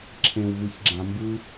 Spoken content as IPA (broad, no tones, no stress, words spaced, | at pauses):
ǁʰẽwvɯçɡ͡ǁã mbɯ